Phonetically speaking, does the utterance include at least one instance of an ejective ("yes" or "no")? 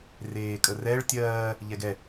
yes